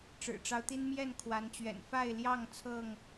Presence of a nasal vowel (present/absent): absent